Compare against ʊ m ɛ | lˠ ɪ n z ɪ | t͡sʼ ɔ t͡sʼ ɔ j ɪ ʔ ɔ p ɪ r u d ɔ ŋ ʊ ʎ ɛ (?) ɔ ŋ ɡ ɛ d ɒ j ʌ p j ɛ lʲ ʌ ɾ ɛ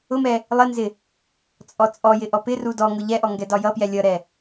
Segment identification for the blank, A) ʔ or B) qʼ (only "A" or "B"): A